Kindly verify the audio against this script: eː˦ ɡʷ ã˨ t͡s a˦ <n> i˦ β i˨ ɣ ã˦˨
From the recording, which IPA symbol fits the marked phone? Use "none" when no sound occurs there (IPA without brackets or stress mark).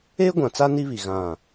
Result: n